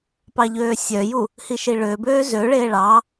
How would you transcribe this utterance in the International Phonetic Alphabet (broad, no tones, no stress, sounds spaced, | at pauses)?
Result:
p ɑ ʎ øː sʲ œ j u | h i ʃ i ɭ ø b øː z ø ɭ eː ɭ ɑ